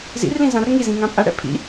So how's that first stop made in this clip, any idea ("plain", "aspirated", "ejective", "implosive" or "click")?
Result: ejective